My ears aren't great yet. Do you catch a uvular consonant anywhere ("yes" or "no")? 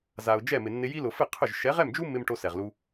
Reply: yes